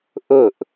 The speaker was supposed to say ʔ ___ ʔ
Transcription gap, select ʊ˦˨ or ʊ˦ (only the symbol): ʊ˦˨